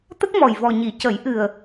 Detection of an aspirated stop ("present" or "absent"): absent